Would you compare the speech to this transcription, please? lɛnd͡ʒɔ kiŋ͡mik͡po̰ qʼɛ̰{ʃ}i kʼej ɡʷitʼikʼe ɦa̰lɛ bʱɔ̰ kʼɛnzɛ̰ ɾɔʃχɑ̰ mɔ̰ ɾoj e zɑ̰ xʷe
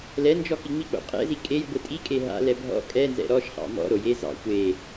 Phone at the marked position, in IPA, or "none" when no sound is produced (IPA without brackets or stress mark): z